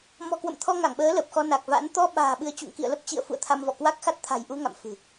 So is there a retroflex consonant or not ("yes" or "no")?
no